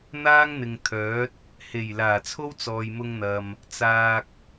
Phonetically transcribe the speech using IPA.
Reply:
n̪ aː˥ ŋ n̪ ɪ˨ ŋ t̪ʰ œː˨˥ t̚ | h e˨˩ j l aː˨˩ t͡sʰ o˥ w t͡s ɔː˨ j m ʊ˧ ŋ n̪ ɐ˨ m | t͡s aː˨ k̚

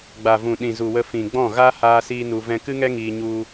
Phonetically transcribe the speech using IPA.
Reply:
ɡ͡b a˨ v ũ˨ ɗ ĩ˨ z u˨ w ə˧ f ĩ˨ ɡ͡b ɔ̃˦˨ ɣ a˦ h aː˦ s iː˦ n u˧ v ɛ̃˧ k ɨ˦ ŋ ɛ˦ ŋ iː˧ ɲ u˧

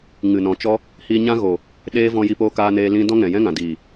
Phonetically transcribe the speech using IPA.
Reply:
ŋ ɨ˨ n ɔ̃˨ t͡ʃ ɔ˦ | h iː˧ ɲ ã˦ ɣ o˨ | ɗ eː˦ v ɔ̃˧ j i˧ p oː˧ k aː˧ n eː˧ l ĩ˦ d ɔ̃˦ ŋ ɛ̃˨ j ɛ̃˦ ŋ ã˨ d iː˨

